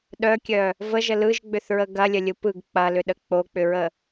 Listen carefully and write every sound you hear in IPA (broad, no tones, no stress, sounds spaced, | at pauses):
ɗ œ kʲ œ | v ə ʒ ə l ɯ ʒ ɡ͡b ʏ θ ɹ ə ɡ ɐ lʲ ə lʲ ɯ p ɯ ɡ k͡p ɐ l ʏ ɗ ə k͡p o k͡p ʏ ɹ ə